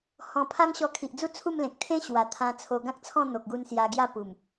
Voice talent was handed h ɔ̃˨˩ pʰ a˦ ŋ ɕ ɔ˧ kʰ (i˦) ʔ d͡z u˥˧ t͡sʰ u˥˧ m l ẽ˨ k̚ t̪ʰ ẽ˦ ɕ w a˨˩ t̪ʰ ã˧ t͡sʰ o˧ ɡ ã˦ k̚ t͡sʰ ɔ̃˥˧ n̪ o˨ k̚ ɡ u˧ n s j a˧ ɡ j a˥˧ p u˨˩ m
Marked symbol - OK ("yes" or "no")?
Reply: no